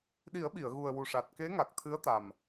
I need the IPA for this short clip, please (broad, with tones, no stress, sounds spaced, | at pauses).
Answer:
ɗ i˨˩˦ ə̯ ɓ i˨˩˨ ə̯ ɣ u˨˩ ə̯ w u˨˩ ʂ a˨˩ t̚ k e˧˥ ŋ a˨˩ k̚ t̪ʰ ɨ˧˥ ə̯ t̪ a˨˩ m